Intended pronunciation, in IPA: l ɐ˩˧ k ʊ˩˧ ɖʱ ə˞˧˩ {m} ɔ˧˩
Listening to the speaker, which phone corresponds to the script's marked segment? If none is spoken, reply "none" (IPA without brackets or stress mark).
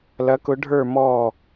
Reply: m